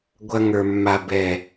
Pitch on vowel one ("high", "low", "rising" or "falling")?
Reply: high